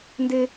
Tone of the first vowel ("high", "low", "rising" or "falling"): high